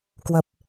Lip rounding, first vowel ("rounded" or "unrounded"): unrounded